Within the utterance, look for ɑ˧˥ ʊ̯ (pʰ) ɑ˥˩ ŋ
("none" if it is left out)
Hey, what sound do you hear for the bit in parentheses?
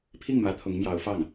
f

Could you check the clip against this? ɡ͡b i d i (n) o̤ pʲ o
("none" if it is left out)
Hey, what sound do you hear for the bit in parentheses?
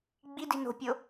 n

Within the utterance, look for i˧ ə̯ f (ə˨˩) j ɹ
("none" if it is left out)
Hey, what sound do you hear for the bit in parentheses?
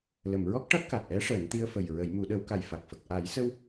ə˨˩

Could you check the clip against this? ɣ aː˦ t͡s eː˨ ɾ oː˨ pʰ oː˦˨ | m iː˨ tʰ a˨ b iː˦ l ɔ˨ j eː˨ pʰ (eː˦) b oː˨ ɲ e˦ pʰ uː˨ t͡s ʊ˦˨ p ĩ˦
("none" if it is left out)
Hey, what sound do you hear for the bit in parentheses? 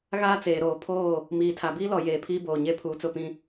iː˦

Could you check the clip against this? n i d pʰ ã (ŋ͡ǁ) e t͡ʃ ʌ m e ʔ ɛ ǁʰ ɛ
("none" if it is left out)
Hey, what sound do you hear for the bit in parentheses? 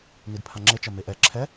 ŋ͡ǁ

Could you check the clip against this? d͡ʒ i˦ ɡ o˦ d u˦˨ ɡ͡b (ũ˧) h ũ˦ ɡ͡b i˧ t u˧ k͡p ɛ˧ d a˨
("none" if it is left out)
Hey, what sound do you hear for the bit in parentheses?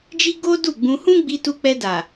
ũ˧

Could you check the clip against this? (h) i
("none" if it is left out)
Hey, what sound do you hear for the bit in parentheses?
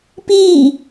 p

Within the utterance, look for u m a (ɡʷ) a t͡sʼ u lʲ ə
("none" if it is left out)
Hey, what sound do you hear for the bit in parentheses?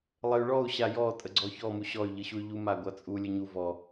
ɡʷ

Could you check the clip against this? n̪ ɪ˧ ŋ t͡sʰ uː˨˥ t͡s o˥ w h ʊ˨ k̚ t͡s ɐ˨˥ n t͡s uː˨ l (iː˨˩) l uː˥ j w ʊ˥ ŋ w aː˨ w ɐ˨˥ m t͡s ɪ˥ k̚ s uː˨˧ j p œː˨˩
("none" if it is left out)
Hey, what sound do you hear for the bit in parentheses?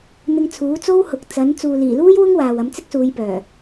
iː˨˩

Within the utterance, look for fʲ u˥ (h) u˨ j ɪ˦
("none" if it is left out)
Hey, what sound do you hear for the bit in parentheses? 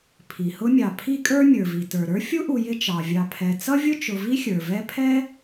ʔ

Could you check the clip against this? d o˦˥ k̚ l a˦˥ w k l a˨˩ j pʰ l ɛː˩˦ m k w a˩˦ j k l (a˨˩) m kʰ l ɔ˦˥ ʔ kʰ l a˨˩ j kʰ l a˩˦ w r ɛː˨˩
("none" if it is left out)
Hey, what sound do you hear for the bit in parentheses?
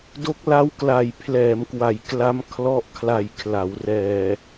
a˦˥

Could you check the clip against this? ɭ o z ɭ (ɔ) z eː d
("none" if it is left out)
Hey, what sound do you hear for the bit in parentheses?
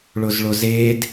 o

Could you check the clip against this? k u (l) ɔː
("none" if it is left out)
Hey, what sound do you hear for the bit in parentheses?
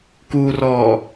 r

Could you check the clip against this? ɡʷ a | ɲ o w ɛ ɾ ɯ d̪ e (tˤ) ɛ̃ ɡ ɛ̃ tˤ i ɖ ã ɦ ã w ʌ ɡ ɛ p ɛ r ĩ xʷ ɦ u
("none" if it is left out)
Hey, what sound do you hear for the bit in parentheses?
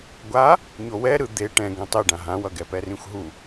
ʈ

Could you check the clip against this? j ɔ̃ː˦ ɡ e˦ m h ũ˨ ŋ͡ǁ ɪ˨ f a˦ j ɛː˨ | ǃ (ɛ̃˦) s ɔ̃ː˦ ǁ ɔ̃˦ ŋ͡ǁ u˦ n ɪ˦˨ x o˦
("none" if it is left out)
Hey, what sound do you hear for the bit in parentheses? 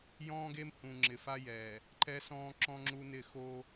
ɛ˦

